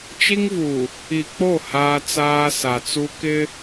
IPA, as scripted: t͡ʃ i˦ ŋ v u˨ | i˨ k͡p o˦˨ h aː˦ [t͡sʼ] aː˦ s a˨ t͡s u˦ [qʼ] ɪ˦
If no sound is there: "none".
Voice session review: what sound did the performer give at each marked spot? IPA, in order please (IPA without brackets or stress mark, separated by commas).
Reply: t͡s, k